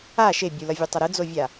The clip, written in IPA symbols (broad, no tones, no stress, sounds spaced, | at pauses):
a ʃ e bʲ u l ʌ vʲ ɛ tˤ ʌ ɾ ɯ d͡z o vʲ a